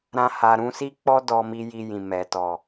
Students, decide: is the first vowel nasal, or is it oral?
nasal